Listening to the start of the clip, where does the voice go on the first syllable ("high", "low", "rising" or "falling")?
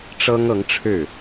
high